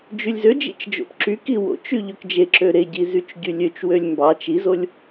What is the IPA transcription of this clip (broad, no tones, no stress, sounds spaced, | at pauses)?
d͡ʒ y lʲ z ø d͡ʒ ḭ t͡ʃ d͡ʒ o̰ p ǁ y k i w o̰ t͡ʃ y ʎ ø k d͡ʒ e ǁ ø ɾ e ɟ i z y t͡ʃ ɟ y lʲ ø t͡ʃ w ø lʲ m b ɑ t͡ʃ i z o lʲ